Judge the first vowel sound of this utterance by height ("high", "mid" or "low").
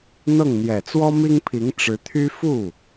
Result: mid